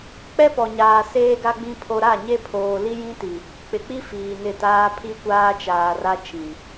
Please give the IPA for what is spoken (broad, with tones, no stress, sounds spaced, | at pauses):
k͡p ɛ˦ p ɔ˨ ɲ aː˨ s eː˨ ɡ a˨ ɡ͡b ĩ˨ pʰ o˨ ɾ a˦˨ ɲ e˦ pʰ oː˨ l i˦ j ĩ˦ t i˨ | k͡p ɪ˨ k͡p i˦ f iː˨ n ɪ˦˨ t aː˦ pʰ i˦ kʷ aː˦ t͡ʃ aː˨ r a˦ t͡ʃ ĩ˨